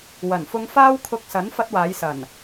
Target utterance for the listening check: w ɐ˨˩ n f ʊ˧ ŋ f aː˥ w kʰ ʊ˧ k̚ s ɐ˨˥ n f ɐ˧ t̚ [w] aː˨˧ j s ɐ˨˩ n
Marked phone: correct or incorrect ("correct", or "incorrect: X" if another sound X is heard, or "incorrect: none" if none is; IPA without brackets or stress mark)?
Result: correct